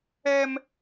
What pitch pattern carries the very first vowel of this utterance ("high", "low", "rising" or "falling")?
high